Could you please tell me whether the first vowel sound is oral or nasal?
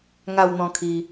oral